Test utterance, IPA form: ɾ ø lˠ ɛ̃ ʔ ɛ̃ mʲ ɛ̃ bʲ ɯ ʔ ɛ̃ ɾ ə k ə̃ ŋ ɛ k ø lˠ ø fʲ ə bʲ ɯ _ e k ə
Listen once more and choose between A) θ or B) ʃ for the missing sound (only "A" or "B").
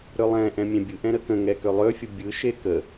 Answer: B